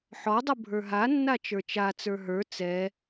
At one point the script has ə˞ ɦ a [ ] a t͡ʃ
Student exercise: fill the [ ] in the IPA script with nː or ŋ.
nː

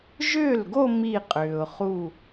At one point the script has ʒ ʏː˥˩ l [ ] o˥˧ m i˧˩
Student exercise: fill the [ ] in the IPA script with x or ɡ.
ɡ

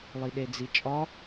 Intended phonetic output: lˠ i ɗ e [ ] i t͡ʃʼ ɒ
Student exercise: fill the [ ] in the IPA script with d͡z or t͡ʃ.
d͡z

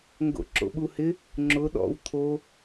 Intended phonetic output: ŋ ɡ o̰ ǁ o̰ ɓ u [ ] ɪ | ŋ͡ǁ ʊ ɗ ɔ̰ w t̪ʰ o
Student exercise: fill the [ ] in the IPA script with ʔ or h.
h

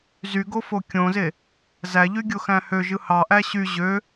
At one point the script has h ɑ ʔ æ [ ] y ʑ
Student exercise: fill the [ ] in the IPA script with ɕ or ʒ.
ɕ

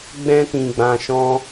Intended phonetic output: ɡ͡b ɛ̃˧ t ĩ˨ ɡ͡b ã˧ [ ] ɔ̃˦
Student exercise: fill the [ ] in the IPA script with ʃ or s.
ʃ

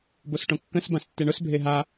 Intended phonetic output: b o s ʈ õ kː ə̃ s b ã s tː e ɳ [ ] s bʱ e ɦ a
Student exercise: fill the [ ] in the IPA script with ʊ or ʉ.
ʊ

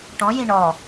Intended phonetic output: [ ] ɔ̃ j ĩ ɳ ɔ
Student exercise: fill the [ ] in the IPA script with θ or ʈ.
ʈ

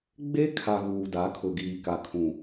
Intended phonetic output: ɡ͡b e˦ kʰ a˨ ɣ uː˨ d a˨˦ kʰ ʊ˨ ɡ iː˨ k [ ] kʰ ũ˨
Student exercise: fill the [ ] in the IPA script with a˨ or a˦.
a˨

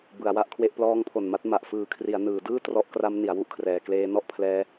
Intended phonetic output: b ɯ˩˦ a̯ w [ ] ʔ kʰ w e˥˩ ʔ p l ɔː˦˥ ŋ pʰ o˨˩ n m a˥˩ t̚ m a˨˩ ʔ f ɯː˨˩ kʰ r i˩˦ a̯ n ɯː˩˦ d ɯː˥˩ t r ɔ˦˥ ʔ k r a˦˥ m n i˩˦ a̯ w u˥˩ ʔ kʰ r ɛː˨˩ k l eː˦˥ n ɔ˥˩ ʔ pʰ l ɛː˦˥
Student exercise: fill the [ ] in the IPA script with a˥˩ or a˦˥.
a˥˩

